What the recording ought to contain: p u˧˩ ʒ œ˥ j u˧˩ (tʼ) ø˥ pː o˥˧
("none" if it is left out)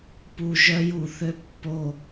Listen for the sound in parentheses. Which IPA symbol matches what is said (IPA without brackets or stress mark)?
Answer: θ